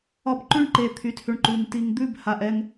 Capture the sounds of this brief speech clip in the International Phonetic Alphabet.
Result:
ɒ˦ b ǃ ʉ˦ ɳ ǃ e˨ t̪ʰ y˨˦ t h ʉ˨ ɳ ǃ ʉ˨ ŋ t i˨ ŋ d̪ ʉ˦˨ b h a˨ ʔ ɛ˦ ŋ

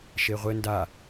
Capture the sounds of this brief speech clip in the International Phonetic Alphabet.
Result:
ʃ e ʁʷ ɘ n d a

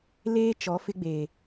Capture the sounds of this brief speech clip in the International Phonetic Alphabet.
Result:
l eː˦ t͡ʃ ɔ˨˦ f ɪ˦ ɡ͡b eː˨

